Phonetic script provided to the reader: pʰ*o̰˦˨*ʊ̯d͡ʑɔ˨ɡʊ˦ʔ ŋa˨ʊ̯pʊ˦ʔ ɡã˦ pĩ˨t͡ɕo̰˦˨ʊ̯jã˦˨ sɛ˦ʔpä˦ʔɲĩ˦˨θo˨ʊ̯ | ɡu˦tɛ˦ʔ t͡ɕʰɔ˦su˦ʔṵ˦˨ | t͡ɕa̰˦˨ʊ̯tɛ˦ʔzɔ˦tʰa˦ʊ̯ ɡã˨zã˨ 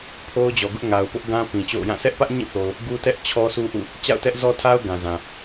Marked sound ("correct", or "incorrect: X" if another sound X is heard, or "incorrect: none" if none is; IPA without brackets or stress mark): incorrect: o˦